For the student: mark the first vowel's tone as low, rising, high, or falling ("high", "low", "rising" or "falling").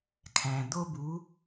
low